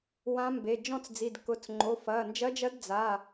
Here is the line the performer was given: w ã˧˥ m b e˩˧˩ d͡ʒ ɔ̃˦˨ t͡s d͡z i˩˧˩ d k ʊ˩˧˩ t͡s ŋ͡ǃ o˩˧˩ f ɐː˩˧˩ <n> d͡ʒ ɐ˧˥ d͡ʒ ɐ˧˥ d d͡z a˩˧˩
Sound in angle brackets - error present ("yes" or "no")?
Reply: no